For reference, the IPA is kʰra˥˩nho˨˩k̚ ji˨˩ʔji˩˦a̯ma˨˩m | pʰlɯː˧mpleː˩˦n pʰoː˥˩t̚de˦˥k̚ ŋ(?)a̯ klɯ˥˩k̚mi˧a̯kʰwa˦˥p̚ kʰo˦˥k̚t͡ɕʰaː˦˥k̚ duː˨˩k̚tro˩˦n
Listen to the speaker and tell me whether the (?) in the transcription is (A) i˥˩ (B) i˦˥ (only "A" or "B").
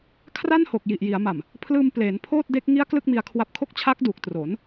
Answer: B